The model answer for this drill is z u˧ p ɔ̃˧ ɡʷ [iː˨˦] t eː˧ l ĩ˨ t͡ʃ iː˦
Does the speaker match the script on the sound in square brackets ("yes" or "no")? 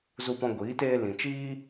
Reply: yes